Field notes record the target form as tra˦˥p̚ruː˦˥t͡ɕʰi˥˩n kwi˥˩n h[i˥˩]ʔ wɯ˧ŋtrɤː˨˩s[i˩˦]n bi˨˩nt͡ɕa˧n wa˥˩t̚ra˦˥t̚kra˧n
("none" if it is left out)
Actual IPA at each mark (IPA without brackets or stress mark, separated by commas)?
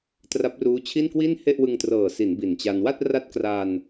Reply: e˥˩, i˩˦